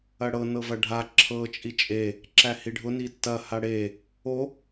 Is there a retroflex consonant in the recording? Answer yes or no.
yes